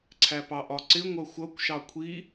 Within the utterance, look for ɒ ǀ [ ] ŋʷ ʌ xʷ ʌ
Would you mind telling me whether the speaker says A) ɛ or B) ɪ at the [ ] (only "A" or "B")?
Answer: B